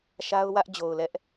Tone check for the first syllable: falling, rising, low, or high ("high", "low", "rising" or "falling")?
high